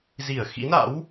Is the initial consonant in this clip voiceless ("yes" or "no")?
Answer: no